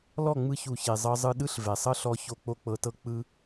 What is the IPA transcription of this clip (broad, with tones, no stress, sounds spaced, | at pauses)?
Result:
l ɔ˦˨ ŋ͡m ɯ˧ ç u˨ ç e˨ zˤ ɤ˧ zˤ ɯ˧ ɗ ɯ˦ ɬ v ɛ˨ sˤ ɤ˦ ɬ ɔ˧ ç o˦ k͡p o˦ k͡p ɤ˧ t ɤ˦ k͡p ɯ˦